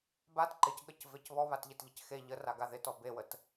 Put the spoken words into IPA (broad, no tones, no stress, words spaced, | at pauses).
bat ǃɪcɠəcvec βɔβatʎɪtʎɪc xe ʎəraɡa ðɪtɔ bewət